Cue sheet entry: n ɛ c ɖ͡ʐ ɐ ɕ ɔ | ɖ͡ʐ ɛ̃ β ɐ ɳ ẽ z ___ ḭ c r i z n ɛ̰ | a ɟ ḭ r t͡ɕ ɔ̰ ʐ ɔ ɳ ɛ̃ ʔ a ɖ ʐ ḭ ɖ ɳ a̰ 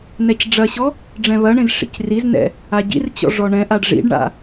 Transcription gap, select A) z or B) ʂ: B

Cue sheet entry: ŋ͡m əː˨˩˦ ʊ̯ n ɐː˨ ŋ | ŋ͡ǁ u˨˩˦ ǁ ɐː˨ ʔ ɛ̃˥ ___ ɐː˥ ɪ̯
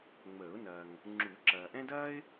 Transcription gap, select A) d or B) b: A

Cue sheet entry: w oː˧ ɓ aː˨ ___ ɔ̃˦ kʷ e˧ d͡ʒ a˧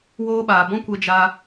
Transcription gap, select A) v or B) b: B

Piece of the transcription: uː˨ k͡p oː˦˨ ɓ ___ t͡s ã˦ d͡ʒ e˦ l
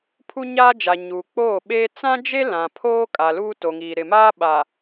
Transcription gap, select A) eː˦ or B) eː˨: A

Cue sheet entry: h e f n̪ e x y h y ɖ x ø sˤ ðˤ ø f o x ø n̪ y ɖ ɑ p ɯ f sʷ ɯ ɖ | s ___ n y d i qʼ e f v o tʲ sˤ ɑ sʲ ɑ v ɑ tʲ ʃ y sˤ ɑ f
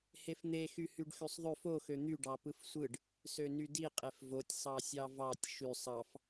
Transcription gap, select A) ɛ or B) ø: B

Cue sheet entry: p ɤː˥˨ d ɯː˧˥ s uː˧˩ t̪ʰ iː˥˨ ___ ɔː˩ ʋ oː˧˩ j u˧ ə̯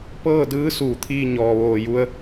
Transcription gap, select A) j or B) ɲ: B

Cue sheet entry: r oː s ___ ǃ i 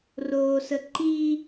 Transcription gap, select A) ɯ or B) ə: B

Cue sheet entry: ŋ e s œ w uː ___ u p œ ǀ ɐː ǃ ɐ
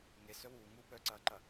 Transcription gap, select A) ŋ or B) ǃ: A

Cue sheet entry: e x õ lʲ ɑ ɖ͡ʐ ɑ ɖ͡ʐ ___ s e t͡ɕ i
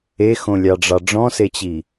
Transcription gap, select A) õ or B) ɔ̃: B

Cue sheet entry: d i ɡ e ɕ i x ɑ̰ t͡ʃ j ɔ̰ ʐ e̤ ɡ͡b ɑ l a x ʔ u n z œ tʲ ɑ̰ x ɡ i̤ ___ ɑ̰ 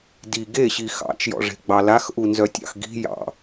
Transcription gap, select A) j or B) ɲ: A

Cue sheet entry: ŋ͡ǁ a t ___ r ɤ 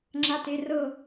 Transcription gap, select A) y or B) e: B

